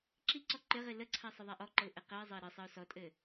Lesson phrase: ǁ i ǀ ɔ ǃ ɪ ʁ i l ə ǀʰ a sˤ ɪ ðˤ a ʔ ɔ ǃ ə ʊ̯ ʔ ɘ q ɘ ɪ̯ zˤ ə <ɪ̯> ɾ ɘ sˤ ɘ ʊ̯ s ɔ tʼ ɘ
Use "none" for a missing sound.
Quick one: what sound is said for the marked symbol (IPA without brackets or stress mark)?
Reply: ɪ̯